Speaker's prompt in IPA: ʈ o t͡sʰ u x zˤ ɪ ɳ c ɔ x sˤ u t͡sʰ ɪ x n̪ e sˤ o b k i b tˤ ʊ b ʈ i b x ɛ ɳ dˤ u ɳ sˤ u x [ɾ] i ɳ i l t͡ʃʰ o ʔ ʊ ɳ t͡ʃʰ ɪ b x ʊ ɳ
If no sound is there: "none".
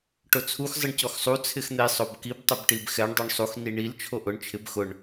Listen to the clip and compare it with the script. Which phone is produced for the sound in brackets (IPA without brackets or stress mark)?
n